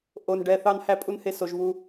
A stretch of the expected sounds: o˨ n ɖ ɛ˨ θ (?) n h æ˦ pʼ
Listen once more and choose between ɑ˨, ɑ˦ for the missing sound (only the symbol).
ɑ˦